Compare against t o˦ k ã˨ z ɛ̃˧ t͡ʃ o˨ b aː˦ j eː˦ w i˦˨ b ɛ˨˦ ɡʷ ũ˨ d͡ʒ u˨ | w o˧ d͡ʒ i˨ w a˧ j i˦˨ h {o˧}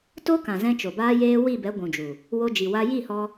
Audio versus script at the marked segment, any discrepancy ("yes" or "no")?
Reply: yes